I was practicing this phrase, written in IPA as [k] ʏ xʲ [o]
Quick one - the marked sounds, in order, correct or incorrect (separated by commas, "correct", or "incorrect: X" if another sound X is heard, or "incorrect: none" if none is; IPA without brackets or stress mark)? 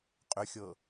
incorrect: qʼ, incorrect: ɤ